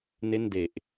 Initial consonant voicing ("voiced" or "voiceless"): voiced